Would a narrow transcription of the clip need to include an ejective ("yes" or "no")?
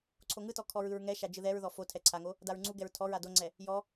no